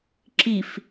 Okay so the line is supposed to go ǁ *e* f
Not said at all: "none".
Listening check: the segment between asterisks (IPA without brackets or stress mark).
i